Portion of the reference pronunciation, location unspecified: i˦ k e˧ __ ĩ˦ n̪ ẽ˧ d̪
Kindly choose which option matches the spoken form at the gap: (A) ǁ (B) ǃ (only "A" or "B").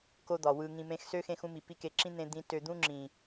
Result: A